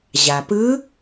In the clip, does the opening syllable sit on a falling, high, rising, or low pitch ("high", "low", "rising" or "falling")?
low